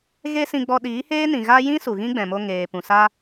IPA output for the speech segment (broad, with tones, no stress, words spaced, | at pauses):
ɣe˦sĩ˧ɡ͡bɔ˧ ɗiː˨˦heː˦ nĩ˨ɣa˦ jĩ˦ su˨ɣĩ˦ɡ͡bɛ̃˨mo˧ ŋeː˨pũ˨sa˦